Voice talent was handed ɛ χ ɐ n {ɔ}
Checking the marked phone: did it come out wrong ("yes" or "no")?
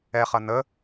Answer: yes